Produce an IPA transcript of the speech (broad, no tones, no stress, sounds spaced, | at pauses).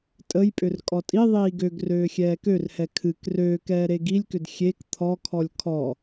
tʼ ə j pʼ ʏ r kʼ ɔ tʼ i ðˤ iː ɡ ø ɡ r øː xʲ ɛː k ø r h ɛ kʰ ɨ k r øː k ɛː ɾ e ɡ i lʲ k ʏ d xʲ e k t̪ʰ ɔ kʰ ɔ lʲ kʰ ɔ